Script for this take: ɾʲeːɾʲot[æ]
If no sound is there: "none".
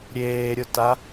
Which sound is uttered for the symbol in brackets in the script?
a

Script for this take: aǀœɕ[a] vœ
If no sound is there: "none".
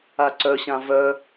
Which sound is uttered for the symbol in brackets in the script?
ã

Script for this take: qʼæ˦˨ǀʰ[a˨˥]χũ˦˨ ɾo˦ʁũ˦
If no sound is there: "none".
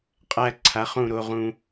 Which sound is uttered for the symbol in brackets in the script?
a˨˥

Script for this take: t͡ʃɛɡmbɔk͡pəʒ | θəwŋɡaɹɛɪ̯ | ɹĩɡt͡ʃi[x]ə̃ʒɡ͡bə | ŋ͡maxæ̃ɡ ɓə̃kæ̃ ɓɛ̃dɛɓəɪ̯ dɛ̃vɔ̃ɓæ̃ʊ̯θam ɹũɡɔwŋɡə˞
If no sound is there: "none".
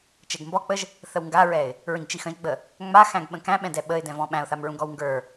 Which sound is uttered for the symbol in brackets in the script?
x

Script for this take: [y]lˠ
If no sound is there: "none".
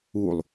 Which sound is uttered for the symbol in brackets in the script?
u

